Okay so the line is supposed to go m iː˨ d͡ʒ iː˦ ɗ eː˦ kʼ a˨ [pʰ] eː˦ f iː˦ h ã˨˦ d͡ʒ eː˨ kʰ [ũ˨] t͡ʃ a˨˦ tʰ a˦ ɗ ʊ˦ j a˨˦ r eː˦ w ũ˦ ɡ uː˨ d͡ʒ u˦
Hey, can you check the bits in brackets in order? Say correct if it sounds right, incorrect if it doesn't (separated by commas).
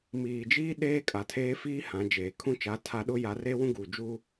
incorrect, incorrect